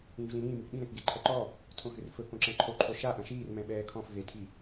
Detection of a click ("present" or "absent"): present